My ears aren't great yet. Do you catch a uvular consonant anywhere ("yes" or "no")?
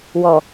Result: no